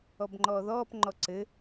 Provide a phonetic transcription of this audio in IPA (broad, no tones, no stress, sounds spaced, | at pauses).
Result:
ɔ b ŋ͡ǃ ɔː ð ɔː p ŋ͡ǃ ɔ ǀ ɘ